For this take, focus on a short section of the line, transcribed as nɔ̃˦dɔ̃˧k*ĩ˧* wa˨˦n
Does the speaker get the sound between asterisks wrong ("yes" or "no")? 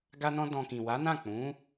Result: yes